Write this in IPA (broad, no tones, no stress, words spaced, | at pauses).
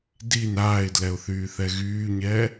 din aːɪ̯dlɛʊ̯θyːθɛ ɣyːɲɛː